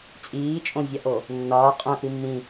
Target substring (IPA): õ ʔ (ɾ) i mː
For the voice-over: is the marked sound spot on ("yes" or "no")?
yes